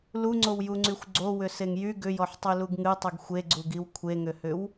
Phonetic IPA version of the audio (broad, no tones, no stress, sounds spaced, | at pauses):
l u ŋ͡ǀ o w j u ŋ͡ǀ y xʷ ɡ͡ǀ o w ʏ s e ŋ j y ɡ ʏ j ɔ ħ tˤ y l u ɡ ŋ ɨ tˤ ɨ ɡ xʷ e ɡ͡ǀ u ɡ i w kʷʰ e ŋ ʏ h ʏ w